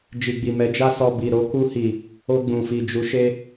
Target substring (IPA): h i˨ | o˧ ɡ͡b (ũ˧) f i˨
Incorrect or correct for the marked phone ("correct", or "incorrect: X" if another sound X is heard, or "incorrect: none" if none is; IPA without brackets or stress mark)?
incorrect: ũ˨